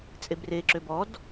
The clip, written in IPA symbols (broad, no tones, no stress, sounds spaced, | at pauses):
t͡sʼ e b r e ǁ ø b ɔ d